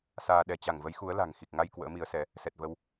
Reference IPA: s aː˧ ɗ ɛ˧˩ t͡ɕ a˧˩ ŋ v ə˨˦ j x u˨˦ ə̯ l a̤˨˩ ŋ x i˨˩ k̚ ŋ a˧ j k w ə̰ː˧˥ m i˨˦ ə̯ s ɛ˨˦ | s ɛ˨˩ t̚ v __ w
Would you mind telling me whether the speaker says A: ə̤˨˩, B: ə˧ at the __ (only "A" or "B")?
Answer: B